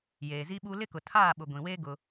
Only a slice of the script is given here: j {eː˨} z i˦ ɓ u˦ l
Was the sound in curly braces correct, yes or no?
yes